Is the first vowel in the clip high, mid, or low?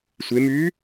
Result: mid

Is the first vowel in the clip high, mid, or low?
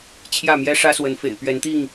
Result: low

